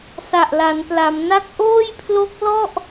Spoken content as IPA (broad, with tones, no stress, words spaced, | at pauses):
sa˨˩ʔla˩˦npla˩˦mna˥˩k̚ ʔoː˥˩jpʰlo˦˥k̚lɔ˥˩ʔ